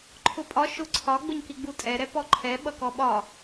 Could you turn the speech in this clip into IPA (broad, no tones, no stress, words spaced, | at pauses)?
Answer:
ǃʰʊpʼɒ ʃʊ ǀʰɒ ɡ͡bʊɲkiɡ͡butʼɛ ɾɛpɔǃʰɛ ɓʌkɔɓɒ